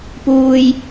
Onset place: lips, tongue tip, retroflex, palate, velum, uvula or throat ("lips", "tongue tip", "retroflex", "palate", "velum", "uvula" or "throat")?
lips